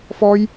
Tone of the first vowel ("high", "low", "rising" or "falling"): high